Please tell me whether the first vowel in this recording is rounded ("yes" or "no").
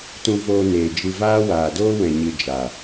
yes